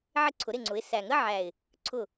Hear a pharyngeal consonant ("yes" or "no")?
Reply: yes